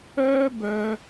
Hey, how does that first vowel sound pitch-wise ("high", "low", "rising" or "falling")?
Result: high